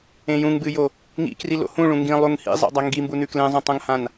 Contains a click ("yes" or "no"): no